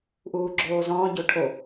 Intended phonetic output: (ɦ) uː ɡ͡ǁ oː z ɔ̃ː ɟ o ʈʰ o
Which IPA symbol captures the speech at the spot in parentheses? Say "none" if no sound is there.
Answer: ʔ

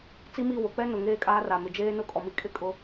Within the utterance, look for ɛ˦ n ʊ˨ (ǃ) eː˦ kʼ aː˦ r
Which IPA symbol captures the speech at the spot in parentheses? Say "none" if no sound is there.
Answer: ŋ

